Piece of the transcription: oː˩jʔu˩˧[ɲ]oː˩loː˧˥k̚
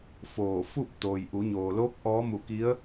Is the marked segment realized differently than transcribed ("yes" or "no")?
no